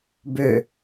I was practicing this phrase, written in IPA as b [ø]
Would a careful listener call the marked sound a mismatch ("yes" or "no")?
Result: no